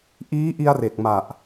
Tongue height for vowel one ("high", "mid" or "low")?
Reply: high